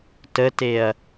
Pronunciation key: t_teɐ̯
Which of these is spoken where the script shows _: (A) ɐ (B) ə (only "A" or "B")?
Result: B